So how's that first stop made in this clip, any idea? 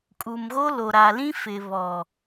ejective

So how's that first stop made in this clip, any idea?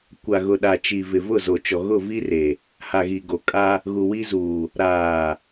plain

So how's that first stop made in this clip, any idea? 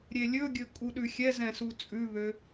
plain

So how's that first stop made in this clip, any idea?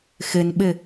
implosive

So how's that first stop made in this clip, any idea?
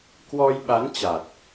plain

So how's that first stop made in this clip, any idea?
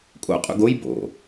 ejective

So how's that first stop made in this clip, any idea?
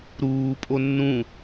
ejective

